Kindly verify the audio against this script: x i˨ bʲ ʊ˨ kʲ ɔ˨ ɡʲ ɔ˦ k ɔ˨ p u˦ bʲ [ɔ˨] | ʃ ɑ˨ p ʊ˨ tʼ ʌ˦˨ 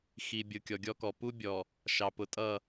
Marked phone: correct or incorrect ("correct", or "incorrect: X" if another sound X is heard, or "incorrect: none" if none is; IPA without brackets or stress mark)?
correct